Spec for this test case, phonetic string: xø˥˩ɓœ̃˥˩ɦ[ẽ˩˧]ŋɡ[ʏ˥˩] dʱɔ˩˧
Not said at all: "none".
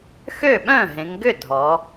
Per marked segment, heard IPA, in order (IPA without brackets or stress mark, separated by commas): ẽ˩˧, ʏ˥˩